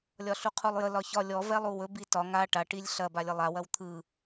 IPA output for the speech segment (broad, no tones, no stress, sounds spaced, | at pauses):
lʲ ɒ ɬ u qʰ u lˠ j ə l ɒ ç ɒ lʲ ɔ v ɛ lˠ u w ɵ b i t ɒ ŋ a ʈ a ʈ i lʲ ɬ ɐ b a lʲ ə lˠ a w ɐ w t̪ʰ ɯ